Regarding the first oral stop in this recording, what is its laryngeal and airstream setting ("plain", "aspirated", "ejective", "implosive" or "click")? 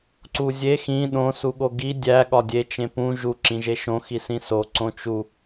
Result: click